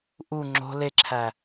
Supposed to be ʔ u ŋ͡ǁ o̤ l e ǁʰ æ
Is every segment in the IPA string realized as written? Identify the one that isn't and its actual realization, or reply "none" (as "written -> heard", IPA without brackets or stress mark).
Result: none